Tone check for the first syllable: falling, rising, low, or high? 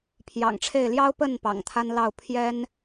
low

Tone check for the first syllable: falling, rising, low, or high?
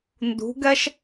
rising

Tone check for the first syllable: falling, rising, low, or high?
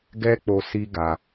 high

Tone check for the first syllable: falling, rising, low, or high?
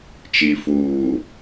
low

